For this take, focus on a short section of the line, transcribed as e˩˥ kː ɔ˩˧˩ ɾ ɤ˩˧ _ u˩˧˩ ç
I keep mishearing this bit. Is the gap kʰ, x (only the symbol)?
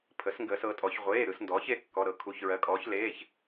kʰ